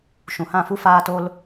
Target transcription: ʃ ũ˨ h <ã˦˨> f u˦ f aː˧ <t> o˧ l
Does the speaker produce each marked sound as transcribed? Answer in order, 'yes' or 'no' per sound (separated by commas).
yes, yes